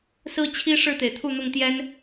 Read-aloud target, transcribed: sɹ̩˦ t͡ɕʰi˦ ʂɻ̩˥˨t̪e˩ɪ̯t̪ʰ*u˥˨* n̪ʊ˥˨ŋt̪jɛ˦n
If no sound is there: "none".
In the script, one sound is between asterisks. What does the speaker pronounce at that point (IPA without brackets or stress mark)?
u˥˨